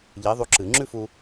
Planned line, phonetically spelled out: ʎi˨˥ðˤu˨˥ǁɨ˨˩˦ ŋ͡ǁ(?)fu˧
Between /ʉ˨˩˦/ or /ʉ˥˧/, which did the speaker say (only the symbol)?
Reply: ʉ˥˧